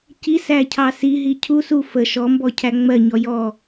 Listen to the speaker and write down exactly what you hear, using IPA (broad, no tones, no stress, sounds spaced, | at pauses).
c i s æ cʰ ɑ s i ɦ i cʰ u s u f ə ʃ ɔ m b ɔ cʰ æ ŋ͡m ɜ ɲ ɔ j ɔ